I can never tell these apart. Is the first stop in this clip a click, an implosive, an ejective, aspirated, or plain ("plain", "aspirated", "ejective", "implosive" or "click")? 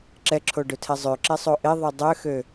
click